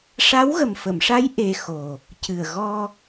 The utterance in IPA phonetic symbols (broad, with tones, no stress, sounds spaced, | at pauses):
ʂ a˧˥ w ɣ ə˨˩ m f ə˨˩˨ m ʂ a˧˥ j ʔ e˧ x o˨˩ | c ɨ˨˩ ə̯ ɣ ɔ˧